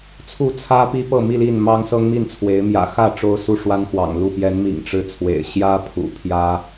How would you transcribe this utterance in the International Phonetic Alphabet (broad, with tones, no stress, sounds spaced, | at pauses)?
t͡sʰ u˥˨ t͡sʰ ä˦ p i˦ p ɤ˥˨ m i˥˨ l i˥˨ n m ɑ˦ ŋ s ɤ˦ ŋ m i˥˨ n t͡sʰ w e˨˦ ɪ̯ m j ä̰˨˩ x ä˥˨ ʈ͡ʂ o˦ ʊ̯ s u˥˨ ʂ w a˦ n x w ɑ̰˨˩ ŋ l u˥˨ p j ɛ˨˦ n m ḭ˨˩ ŋ ʈ͡ʂ ɻ̩˦ t͡sʰ w ḛ˨˩ ɪ̯ ɕ j ä˦ pʰ ṵ˨˩ pʰ j ä˦